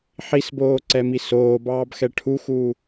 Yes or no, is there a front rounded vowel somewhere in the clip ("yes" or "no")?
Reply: no